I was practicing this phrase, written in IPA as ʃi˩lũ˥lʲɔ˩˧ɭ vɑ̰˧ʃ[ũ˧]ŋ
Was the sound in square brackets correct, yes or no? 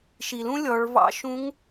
no